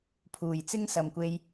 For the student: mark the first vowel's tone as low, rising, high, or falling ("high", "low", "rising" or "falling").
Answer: low